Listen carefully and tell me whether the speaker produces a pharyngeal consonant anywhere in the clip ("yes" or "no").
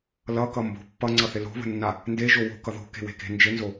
no